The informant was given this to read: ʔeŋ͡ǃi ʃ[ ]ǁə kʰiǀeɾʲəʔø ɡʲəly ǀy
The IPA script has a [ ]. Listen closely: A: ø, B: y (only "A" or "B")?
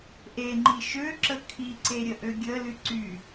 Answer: A